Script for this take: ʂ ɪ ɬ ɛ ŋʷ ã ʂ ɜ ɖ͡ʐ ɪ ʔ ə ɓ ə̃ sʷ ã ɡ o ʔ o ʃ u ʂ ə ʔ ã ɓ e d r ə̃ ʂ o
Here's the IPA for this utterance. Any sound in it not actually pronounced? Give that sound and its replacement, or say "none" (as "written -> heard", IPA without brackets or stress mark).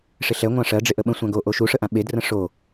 none